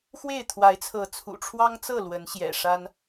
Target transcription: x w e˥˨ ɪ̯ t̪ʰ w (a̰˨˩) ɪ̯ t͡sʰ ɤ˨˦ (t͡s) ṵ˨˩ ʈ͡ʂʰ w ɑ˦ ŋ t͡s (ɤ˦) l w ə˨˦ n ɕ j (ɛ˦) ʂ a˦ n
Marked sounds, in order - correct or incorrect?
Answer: incorrect: a˨˦, incorrect: t͡sʰ, incorrect: ɤ˥˨, incorrect: ɛ̰˨˩

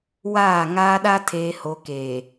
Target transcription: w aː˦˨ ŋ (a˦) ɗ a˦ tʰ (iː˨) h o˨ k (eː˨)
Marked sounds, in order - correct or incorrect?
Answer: incorrect: aː˦, incorrect: eː˨, correct

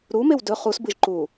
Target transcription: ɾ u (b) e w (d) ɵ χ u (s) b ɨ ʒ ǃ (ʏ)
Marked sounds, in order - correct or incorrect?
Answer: incorrect: m, correct, correct, incorrect: u

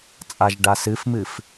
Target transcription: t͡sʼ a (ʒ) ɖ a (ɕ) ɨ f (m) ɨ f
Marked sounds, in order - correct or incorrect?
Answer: correct, incorrect: s, correct

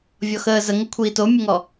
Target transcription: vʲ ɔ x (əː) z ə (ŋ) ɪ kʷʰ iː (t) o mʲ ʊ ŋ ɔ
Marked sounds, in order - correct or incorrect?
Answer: correct, correct, correct

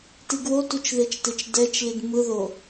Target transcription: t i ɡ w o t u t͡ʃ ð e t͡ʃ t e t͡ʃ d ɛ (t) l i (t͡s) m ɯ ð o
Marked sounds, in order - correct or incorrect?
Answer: incorrect: t͡ʃ, incorrect: d

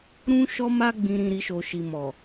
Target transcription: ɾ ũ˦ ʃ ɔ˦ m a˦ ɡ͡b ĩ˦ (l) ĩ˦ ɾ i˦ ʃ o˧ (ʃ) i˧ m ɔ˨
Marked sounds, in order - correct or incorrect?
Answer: incorrect: ɾ, correct

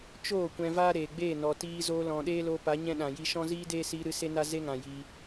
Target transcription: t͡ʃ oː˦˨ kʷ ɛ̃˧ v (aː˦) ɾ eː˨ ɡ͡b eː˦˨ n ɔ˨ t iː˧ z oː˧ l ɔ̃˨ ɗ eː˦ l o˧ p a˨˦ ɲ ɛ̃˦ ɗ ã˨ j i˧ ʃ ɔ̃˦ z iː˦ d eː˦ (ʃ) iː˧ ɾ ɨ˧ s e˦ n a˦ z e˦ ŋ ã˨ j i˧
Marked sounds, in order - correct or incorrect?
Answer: correct, incorrect: s

